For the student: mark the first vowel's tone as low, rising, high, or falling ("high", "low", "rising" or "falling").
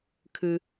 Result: low